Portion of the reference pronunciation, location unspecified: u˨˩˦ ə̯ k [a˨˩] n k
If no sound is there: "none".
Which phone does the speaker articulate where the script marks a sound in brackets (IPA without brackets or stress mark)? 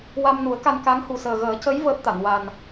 a˧